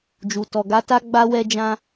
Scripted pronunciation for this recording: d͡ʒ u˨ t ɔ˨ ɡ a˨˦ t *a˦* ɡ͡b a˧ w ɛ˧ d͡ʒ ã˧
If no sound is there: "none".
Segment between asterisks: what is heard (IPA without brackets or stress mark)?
a˦